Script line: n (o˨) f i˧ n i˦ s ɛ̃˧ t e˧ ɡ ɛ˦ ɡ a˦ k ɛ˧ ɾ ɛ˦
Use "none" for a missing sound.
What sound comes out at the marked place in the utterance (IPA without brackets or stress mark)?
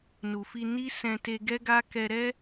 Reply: u˨